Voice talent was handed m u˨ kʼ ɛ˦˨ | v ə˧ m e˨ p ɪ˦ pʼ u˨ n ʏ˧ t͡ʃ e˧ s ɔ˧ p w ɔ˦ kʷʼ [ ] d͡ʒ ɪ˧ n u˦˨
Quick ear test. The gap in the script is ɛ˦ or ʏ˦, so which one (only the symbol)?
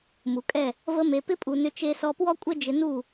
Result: ɛ˦